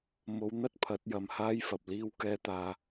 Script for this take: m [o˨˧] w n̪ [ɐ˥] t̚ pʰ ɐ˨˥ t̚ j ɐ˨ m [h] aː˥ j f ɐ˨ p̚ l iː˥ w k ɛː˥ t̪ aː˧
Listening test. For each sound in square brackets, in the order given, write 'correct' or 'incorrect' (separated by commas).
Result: correct, correct, correct